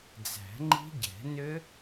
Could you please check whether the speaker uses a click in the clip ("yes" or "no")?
yes